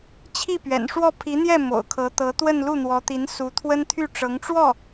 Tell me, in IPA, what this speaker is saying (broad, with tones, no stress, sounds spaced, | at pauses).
t͡ɕʰ i˥˩ p ɥ ɛ̰˨˩ n ʂ w ɔ˥˩ pʰ i˧˥ n̪ j ɛ˥˩ m o̰˨˩ ʊ̯ kʰ ɤ˧˥ t̪ ɤ˧˥ t̪ w ə˥˧ n l u˥˩ n̪ w ɔ˧˥ t̪ i˧˥ n s u˧˥ t̪ʰ w ə˥ n t̪ʰ y˥˩ ʈ͡ʂ ɤ˧˥ ŋ ʈ͡ʂ w ɔ˥˩